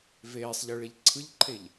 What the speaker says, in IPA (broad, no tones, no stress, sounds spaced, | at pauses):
v eː sˤ ʎ ɯ ɭ e ʎ ǀʰ ɯ ʎ ǃʰ e ʎ